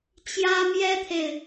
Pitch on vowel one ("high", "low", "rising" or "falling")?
high